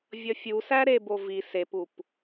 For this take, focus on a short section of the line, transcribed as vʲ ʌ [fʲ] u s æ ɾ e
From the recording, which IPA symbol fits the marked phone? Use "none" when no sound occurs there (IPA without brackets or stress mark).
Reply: fʲ